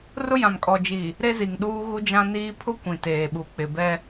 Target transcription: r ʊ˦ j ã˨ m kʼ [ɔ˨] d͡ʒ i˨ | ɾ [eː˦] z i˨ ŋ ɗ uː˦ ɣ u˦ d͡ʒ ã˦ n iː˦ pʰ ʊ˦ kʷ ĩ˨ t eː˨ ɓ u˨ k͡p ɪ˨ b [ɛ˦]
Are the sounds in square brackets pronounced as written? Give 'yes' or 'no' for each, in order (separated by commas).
yes, no, yes